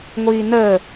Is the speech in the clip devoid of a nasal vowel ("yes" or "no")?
yes